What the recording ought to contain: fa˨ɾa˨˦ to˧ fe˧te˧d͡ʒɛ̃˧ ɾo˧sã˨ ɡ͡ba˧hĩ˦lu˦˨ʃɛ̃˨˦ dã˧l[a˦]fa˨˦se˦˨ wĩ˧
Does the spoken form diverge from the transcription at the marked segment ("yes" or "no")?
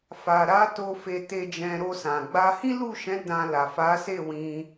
yes